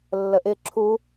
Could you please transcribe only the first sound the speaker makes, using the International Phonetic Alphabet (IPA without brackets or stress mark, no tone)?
lː